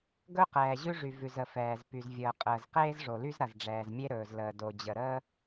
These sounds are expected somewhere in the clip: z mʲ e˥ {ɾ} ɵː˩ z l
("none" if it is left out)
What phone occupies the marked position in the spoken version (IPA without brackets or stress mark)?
ɾ